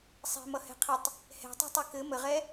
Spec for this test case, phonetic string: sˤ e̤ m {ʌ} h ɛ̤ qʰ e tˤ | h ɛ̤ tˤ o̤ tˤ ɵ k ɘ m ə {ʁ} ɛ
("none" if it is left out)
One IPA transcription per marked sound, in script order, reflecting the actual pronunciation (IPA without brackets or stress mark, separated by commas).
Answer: ʌ, ʁ